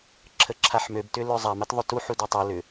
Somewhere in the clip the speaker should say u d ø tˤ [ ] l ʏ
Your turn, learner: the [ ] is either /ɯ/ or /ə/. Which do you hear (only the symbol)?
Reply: ɯ